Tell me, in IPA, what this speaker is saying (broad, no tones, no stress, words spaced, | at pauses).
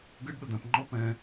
ɡəɖ ɗəd̪æ̃pŋ͡ǃɔ pɛ̃